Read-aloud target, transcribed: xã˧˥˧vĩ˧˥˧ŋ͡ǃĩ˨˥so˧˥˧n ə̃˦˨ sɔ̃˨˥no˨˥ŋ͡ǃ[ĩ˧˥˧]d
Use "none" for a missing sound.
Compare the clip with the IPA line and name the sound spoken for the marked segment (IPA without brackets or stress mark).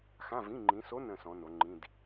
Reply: ĩ˧˥˧